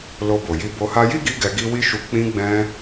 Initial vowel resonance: oral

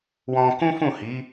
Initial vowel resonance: nasal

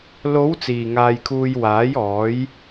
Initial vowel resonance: oral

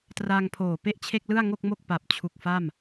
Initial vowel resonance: oral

